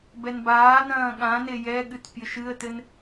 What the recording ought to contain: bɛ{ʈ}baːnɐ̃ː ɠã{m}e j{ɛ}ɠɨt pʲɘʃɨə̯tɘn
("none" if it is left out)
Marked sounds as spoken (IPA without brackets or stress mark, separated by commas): n, n, ɛ